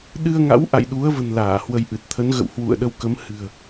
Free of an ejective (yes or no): yes